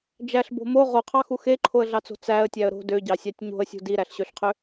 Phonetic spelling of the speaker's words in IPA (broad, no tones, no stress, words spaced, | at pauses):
d͡ʒæɬbo̤ mo ʁoqʰɑxu xeǃʰoə̯ɮɑt͡so̤ t͡sæə̯tʲæə̯ ɾo̤ døɟɑsʲɑtʲ ɲo̤ə̯sʲṳ diɾæɬɕøɬqʰø